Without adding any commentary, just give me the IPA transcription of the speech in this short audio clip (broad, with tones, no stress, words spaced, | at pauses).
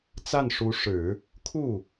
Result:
t͡sa˥˩nʂu˧˥ʂɻ̩˨˩˦ | kʰu˥˩